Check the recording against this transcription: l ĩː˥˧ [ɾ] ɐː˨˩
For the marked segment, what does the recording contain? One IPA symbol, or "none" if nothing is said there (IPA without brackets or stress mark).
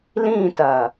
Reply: t